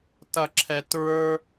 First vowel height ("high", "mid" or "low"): mid